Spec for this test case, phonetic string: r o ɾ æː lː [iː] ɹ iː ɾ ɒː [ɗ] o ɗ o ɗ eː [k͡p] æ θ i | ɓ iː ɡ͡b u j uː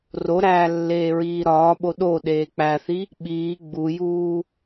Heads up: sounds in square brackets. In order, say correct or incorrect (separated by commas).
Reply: incorrect, incorrect, correct